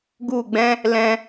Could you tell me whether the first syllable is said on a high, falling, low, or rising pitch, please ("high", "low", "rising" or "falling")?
falling